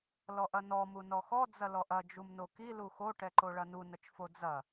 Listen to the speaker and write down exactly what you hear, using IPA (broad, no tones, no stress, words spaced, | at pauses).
lɔʔɐnɔ munɔxɔ d͡zɐlɔʔɐ d͡ʒumnoki luxo ʈɛǃoɭɐnu nɐt͡ʃfod͡zɐ